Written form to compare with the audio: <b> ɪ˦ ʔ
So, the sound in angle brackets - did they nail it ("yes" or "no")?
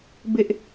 yes